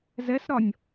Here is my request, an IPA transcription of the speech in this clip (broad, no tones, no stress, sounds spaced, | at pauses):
z ɛ s ɾ ɒ nʲ